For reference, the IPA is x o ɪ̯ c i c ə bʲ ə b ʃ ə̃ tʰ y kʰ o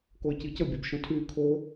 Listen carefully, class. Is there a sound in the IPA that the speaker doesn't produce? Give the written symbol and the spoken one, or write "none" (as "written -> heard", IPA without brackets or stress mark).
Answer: x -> k